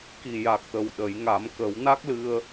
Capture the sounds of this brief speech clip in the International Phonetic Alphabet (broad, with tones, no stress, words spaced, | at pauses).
ki˨˩ja˨˩k̚t̪ə˨˩w ɗə˨˩˦jŋa˨˩˦m kə˨˩˦wna˦˥k̚lɨ˧ə̯